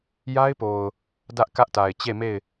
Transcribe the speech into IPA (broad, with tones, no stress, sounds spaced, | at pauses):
j a˦ ɪ̯ p o˨ ʊ̯ | d ä˦ ʔ k ä˦ ʔ t a˨ ɪ̯ t͡ɕ e˦˨ m e˦˨ ɪ̯